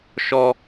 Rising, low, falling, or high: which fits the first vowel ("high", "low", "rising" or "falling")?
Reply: high